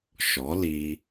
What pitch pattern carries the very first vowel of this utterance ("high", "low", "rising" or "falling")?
rising